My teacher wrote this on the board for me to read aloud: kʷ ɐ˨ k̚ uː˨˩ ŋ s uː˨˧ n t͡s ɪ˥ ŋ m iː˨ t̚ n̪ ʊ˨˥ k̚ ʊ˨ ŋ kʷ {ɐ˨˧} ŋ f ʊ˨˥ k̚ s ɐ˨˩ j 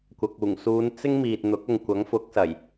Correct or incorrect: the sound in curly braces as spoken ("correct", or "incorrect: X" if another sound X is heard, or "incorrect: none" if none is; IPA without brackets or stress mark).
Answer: incorrect: ɐ˨˥